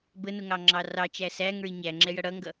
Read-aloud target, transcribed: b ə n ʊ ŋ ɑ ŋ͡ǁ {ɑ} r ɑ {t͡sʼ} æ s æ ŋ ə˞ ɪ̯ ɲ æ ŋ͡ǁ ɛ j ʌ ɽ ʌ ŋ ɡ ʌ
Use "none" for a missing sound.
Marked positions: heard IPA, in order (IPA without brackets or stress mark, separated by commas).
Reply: ɑ, t͡ʃ